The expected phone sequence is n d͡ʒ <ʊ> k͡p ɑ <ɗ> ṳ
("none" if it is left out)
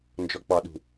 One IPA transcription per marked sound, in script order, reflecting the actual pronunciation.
ɔ, ɗ

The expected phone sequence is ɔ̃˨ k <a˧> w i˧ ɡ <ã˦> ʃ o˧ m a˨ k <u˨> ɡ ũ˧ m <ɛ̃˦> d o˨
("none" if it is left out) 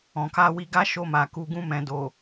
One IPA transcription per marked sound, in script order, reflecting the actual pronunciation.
a˧, a˦, u˨, ɛ̃˨

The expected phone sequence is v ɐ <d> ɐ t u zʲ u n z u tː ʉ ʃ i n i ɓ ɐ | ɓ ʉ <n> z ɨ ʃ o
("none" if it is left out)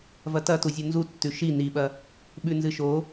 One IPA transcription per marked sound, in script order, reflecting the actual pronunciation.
t, n

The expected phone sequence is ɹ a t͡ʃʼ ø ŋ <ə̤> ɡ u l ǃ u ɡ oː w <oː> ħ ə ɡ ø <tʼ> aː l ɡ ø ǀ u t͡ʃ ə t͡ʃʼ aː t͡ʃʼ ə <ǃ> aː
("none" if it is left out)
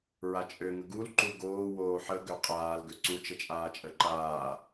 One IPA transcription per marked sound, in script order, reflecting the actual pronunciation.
ə, oː, qʼ, ǃ

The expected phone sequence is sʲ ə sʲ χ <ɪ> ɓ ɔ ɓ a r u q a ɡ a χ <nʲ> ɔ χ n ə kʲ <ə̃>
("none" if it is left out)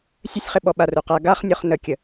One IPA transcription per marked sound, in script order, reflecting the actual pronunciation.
ɪ, nʲ, ə

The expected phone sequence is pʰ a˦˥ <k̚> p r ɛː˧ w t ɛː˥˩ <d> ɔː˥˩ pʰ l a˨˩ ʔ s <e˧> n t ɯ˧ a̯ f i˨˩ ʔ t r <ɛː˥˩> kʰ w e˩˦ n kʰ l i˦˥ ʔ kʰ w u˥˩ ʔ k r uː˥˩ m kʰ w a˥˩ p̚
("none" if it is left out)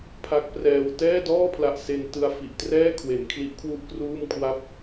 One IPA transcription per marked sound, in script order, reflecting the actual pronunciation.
k̚, d, e˧, ɛː˥˩

